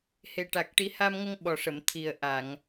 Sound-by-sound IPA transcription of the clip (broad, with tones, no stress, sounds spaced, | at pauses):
h e˨˩ ʈ a˨˩ k̚ ʈ i˨˩˦ h a˧ m ŋ ə˧ ŋ ɓ ɔ˨˩ ʂ ə˨˩˨ m t̪ʰ i˨˩ ə̯ ʔ a˨˩˨ ŋ